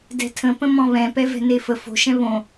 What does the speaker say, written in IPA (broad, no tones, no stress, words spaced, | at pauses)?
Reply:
dɛ̤tʰə̃pə̃ mɔ̃βɛ̃ pɛvɛ̤nefə fo̤ʃɛ̃ βõ